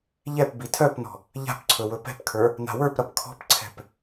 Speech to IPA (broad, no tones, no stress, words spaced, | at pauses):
ʎɛp bitʰœpnɔ̤ | ʎa̤pǀʰɵ wɵpɛ̤pkʰə˞ | na̤wə˞pɾɐp kʰɔ̤pǀʰɛ̤p